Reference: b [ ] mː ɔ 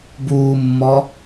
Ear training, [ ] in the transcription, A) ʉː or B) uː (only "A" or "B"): B